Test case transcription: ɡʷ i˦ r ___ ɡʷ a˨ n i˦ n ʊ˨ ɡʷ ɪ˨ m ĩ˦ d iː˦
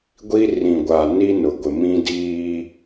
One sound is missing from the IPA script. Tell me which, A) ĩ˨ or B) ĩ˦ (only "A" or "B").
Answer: A